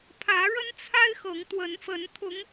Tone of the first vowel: rising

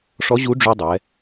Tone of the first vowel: rising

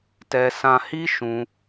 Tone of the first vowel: high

